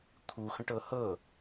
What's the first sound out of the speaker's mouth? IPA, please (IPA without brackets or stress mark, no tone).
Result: t̪ʰ